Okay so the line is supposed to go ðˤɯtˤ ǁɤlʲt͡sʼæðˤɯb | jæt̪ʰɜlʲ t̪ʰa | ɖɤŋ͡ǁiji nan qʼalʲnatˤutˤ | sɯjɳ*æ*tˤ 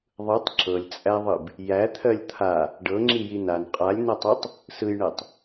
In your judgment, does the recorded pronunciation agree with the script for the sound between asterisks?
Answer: no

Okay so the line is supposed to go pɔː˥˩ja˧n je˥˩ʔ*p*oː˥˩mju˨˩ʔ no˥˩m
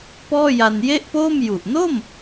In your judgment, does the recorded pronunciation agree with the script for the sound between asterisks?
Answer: yes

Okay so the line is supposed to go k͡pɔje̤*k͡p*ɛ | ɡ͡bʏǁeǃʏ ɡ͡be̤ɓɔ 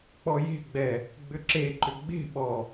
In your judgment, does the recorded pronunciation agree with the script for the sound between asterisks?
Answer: no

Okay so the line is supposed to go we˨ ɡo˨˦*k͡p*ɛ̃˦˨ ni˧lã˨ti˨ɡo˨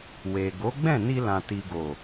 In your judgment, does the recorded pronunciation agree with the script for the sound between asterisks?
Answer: no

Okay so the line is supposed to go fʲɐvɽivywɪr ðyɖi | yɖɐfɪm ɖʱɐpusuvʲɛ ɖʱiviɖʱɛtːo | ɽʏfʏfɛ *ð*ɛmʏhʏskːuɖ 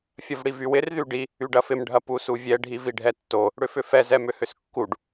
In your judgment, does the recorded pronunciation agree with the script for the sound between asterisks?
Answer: no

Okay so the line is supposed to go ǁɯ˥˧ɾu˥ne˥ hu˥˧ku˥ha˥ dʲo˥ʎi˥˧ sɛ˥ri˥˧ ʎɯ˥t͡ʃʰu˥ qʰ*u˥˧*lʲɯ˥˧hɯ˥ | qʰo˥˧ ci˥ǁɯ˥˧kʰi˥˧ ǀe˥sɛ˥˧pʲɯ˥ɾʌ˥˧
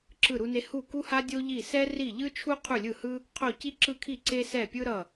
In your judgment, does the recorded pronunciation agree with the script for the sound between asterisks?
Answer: yes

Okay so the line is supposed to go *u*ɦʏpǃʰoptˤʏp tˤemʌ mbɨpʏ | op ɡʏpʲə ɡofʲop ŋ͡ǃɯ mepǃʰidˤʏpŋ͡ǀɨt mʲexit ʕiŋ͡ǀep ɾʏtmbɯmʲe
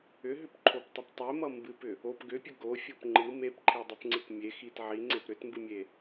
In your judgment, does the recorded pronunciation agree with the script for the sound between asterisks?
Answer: no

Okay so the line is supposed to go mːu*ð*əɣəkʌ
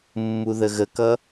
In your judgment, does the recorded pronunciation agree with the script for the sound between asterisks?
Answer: yes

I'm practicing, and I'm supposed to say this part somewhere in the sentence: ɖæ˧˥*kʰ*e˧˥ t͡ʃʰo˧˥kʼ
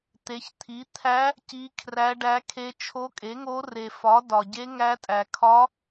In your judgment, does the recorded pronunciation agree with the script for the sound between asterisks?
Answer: yes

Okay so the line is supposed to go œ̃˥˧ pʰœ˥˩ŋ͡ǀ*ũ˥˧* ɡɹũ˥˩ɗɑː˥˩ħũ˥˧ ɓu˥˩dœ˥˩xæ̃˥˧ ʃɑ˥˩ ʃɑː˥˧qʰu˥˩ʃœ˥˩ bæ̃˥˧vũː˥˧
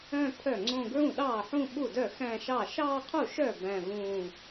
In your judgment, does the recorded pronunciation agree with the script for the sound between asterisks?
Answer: no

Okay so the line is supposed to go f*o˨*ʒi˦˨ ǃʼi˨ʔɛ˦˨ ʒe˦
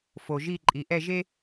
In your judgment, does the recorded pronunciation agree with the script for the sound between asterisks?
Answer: yes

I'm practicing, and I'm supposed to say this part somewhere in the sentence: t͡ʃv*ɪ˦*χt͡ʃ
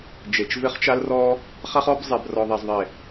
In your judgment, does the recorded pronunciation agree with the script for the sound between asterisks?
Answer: yes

